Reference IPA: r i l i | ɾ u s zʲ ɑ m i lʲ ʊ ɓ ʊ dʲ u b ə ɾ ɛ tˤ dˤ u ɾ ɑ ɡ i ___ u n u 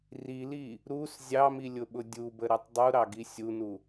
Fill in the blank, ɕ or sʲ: sʲ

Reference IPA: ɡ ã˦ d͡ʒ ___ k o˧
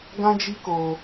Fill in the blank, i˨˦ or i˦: i˦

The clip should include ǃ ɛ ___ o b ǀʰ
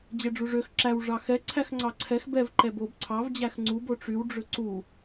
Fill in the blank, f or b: b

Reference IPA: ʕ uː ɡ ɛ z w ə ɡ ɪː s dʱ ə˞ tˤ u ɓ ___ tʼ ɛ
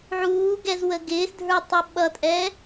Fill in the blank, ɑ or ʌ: ʌ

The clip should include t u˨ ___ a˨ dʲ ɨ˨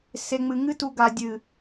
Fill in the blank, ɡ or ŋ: ɡ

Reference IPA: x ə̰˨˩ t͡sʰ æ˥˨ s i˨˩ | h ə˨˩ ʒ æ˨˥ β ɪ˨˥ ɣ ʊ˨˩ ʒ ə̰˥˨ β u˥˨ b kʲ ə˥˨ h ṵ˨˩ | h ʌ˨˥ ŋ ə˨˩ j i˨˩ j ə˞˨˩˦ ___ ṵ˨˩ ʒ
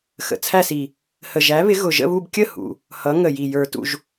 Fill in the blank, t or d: t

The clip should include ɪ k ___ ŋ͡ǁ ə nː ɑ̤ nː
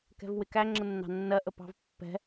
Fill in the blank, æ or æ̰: æ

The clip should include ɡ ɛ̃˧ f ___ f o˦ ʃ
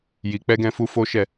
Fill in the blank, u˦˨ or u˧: u˧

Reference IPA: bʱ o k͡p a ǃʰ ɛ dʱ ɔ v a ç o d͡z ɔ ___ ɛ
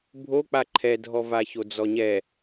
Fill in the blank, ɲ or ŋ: ɲ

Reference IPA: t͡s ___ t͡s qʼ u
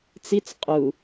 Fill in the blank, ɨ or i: i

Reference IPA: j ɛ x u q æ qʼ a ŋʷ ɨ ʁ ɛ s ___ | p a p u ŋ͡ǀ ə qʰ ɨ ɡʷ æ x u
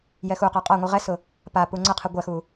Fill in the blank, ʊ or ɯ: ʊ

